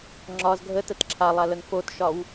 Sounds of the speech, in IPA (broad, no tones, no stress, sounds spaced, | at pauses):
ŋ͡ǁ ɒ z ɡʱ ə t ə t ǁʰ a lˠ a l ə ŋ f o t ʃ ɒ w